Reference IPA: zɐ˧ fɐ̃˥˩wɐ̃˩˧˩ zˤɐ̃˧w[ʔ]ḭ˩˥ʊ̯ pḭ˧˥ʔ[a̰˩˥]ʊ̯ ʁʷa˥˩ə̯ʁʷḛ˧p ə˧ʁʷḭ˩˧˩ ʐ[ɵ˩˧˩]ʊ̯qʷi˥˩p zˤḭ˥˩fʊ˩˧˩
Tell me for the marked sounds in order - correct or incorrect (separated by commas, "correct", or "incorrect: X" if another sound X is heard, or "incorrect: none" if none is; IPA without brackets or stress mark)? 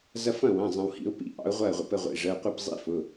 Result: incorrect: h, incorrect: ɑ̰˩˥, incorrect: ə˩˧˩